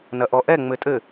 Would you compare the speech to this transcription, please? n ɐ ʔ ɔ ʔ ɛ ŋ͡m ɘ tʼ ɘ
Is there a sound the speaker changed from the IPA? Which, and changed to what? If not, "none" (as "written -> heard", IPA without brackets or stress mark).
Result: none